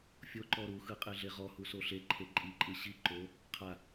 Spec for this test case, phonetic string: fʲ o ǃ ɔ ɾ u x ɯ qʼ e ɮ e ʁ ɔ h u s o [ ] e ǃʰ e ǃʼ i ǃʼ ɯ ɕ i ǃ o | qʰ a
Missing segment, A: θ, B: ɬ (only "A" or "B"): B